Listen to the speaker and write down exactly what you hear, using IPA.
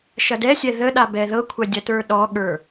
ʃɐdɛsʲɛ ðəɗa bɛðɤkʷʰɐ dʲɐtə˞ɗɔɠə˞

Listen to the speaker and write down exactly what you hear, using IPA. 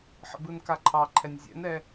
ħə̰bɯnkaǃʰɑ ǃʰɛnʲzʲɛ̰nɛ

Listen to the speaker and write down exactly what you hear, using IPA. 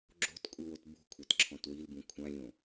ɡ͡ǁo̤tkʷʼɪwot bṳkʷʰatǁʰɔ̃t wilbũ kʷʰãlʲõ

